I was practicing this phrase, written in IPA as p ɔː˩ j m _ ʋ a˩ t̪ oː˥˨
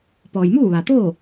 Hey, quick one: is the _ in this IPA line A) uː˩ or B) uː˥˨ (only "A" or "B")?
B